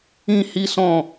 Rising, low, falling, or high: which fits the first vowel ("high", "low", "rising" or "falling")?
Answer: high